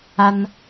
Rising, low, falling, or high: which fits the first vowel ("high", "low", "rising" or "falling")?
high